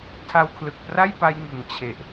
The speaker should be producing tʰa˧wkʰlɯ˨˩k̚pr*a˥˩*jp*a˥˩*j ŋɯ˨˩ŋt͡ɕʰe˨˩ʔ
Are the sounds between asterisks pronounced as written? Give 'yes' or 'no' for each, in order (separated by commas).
yes, no